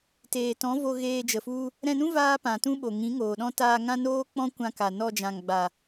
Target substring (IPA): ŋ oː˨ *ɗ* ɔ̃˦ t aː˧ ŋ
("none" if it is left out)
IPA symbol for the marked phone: ɗ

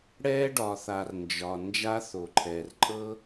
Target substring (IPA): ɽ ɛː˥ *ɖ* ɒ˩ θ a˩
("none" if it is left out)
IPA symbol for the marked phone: ɖ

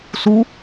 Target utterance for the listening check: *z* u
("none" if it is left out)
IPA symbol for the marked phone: s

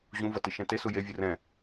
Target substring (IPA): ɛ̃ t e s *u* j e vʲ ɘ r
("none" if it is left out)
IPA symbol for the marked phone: u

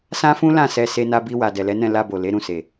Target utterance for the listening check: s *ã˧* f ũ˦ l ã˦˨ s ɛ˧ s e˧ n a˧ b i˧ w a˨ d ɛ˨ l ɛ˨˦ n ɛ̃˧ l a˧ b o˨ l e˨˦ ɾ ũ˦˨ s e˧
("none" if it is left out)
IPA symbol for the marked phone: ã˦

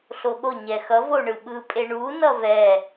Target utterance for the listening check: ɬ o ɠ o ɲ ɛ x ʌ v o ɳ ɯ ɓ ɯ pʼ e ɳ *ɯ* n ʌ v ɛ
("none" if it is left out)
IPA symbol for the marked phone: u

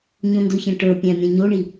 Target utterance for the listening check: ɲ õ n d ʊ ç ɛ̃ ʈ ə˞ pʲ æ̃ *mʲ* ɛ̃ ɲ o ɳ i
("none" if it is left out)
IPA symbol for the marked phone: mʲ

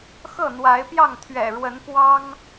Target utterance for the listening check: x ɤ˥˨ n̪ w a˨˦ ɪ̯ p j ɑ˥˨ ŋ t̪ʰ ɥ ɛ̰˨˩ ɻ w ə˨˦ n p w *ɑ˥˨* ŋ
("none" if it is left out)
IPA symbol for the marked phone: ɑ˦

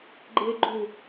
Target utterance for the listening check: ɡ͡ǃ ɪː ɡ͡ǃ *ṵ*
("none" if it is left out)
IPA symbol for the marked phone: u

